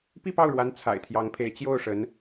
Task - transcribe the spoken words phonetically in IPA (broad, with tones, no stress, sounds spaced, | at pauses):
p i˥˧ p ɑ˥˩ ʊ̯ ɻ w a˧˥ n t͡sʰ a̰˨˩ ɪ̯ t̪ʰ j ɑ˧˥ ŋ pʰ e˧˥ ɪ̯ t͡ɕ j o˥˩ ʊ̯ ʂ ə˧˥ n